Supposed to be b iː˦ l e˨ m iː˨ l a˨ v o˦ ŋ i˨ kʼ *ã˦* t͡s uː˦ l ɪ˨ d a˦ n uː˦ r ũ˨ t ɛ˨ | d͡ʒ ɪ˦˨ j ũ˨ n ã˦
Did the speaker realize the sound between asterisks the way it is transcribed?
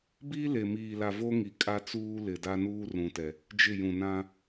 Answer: no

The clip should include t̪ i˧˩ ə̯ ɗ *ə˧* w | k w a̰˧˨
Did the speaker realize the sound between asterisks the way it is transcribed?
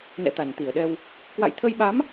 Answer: no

